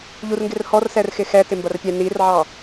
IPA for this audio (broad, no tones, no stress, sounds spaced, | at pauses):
ʎ u r ŋ ɡ ɪ r h ɔ r s ɛ r x ɪ x ɛ t ɪ m b ɐ r pʲ ɛ n i r ʕ ɑ